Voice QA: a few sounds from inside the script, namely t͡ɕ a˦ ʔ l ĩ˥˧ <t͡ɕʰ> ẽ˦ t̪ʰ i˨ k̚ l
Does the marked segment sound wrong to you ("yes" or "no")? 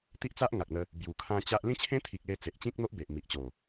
no